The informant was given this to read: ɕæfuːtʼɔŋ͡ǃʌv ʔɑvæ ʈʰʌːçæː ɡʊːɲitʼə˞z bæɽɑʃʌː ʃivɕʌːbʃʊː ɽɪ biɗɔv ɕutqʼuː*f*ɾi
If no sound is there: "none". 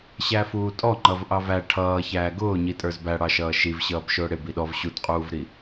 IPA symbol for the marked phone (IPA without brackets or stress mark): v